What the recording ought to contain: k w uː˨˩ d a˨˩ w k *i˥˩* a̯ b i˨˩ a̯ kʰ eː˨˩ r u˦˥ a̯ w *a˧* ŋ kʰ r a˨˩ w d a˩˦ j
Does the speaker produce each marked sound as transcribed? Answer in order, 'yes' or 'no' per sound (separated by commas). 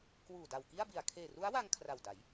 yes, yes